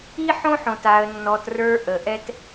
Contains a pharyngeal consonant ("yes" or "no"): yes